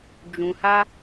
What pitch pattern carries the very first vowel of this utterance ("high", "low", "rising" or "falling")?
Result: low